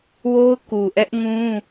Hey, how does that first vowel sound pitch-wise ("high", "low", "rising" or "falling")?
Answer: high